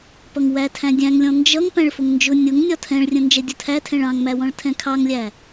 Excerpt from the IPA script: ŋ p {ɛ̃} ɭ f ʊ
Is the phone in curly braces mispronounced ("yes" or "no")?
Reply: yes